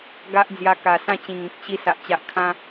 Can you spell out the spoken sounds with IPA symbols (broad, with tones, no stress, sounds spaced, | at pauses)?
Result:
ɡ a˦ ʔ d͡z j a˧ k a˨˩ s ã˥˧ t͡ɕ ĩ˨˩ ŋ ĩ˨ k̚ ɕ i˧ s a˨ ʔ t͡ɕ a˨ ʔ kʰ ã˧